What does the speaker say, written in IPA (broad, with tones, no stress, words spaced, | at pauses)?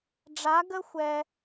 ɖ͡ʐa˧˥ɡə˥xʷɛ˧